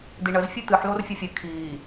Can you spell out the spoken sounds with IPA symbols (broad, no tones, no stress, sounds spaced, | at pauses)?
d̪ i ɳ ə z fʲ ɨ t̪ ɨ ħ l o r fʲ ə fʲ ɨ kʰ iː